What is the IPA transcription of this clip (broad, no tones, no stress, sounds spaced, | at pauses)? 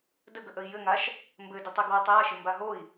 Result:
d ə ɡ ə ʔ ə i̯ j ɘ ŋ a ʃ | m b ɘ d ɘ tˤ i ɡ w ɛ tˤ j a ʃ ɪ m b a ɦ o i̯